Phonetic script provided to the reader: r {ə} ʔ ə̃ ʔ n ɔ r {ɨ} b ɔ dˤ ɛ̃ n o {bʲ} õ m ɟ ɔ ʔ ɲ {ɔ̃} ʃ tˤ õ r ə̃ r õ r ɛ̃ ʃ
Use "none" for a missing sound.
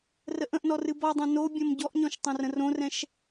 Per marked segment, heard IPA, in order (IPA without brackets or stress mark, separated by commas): ə, ɨ, bʲ, ɔ̃